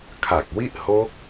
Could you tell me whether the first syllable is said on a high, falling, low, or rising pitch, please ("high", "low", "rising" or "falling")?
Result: low